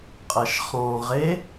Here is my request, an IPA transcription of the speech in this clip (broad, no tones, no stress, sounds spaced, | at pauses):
qʼ ɐ ʃ χ ɔ̃ ʁ e